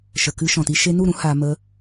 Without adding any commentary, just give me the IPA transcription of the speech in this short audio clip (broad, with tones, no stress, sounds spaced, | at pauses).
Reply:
ʃ ə˨ k ɨ˧ ʃ ɔ̃˨ t i˧ ʃ e˧ n u˦˨ ɾ ũ˦ h a˧ m ə˧